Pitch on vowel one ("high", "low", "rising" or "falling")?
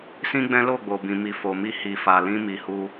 high